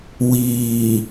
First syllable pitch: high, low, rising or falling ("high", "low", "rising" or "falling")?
low